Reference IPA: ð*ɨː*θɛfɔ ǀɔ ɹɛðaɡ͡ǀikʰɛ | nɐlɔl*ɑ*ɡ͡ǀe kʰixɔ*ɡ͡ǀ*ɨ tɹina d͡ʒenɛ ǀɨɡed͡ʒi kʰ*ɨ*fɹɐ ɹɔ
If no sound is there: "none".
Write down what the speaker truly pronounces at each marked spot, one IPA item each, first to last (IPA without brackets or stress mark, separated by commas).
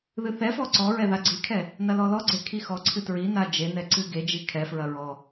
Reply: ɨ, ɔ, ǀʰ, ɛ